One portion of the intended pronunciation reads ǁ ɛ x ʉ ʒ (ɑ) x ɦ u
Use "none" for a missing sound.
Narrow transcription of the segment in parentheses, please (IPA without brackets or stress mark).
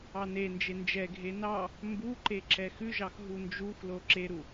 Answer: ɑ